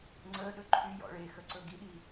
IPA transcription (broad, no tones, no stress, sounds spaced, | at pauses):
ŋ͡ǀ əː ɗ ɵ ǃʰ y j ɔ̰ ɭ e x ə ǀ ɵ ɡ i ɗ i